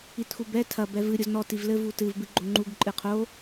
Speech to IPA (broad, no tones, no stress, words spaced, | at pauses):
itxubɛ tʰɐ bɛvɨ ɾʲoznɔ tivlɘ vutɨv bɨɡ͡ǃoŋ͡ǃuɡ ǃʼɨqʰo